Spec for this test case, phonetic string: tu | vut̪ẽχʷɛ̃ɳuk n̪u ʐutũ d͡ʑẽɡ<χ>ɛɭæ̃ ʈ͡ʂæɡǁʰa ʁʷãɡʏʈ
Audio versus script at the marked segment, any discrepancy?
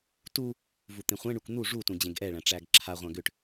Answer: yes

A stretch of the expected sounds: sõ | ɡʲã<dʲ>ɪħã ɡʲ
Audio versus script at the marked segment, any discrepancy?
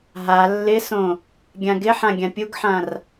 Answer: yes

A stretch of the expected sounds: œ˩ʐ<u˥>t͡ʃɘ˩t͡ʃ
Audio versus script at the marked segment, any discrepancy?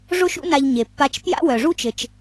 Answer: no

